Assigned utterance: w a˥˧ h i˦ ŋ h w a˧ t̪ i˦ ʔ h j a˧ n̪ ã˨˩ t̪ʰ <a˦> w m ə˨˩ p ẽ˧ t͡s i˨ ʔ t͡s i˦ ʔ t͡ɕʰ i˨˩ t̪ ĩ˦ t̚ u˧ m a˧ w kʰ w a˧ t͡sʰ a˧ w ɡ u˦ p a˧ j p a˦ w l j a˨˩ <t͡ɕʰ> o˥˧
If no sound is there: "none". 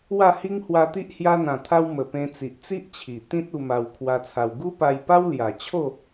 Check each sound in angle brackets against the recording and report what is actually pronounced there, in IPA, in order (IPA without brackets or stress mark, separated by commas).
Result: a˧, t͡ɕʰ